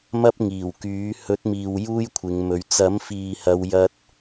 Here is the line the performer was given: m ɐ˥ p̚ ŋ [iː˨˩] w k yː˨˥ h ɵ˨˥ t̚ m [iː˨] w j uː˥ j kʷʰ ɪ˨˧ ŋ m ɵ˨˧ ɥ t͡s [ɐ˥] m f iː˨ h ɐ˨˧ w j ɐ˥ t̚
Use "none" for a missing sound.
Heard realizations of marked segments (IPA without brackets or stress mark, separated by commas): iː˨˩, iː˨, ɐ˨˥